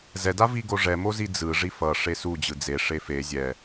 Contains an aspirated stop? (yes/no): no